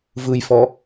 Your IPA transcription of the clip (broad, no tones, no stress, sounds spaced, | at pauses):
v ɯ j f ɔ